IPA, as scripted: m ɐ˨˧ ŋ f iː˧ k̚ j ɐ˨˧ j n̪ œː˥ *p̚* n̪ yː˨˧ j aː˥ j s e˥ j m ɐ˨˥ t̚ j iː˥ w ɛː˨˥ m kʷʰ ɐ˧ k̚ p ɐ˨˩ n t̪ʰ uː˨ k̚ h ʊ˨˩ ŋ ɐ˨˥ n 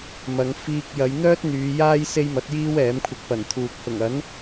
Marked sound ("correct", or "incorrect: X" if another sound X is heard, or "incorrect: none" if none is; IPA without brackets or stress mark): incorrect: t̚